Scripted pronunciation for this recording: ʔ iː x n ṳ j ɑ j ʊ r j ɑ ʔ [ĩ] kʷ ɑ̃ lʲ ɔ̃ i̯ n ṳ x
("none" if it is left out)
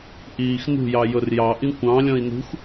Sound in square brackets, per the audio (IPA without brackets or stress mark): ĩ